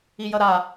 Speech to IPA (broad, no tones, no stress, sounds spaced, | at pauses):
i j ʌ ɾ a